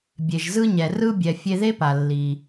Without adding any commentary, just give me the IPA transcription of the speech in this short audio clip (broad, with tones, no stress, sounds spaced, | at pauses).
bʲ e˩ ʒ z ɯ˧ ɲ ɛ˩ r ɯ˧ bʲ ɛ˩ fʲ e˧ ð e˥ p a˩ lː i˩